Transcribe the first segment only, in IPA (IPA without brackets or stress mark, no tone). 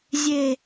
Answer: zʲ